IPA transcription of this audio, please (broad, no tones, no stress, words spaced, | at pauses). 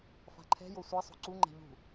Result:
fa̤ǃʰɛ̤jo sʷɛsˤo̤ ǀuŋ͡ǃɛ̤ ʎṳ